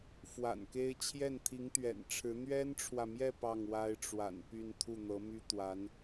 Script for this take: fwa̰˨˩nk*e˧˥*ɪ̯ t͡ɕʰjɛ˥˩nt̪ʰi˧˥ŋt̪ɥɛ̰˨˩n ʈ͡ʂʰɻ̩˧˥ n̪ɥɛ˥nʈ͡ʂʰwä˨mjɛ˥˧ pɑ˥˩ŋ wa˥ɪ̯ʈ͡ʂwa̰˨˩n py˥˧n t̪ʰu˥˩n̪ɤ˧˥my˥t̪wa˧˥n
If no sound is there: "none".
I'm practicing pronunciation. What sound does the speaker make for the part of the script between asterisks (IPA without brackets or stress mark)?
e˥